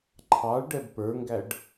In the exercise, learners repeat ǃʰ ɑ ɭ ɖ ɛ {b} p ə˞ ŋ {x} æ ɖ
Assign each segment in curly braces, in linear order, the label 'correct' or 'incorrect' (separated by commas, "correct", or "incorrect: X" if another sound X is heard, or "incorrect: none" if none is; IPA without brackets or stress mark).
correct, incorrect: ɡ